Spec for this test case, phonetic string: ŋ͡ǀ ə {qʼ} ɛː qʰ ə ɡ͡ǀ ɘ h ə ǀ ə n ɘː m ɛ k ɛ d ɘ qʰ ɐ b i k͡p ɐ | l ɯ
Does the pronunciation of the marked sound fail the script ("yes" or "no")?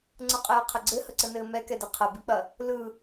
no